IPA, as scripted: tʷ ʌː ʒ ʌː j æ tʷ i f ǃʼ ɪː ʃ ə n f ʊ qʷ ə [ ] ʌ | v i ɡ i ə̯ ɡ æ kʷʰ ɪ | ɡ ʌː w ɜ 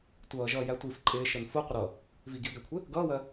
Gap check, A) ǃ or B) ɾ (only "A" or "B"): B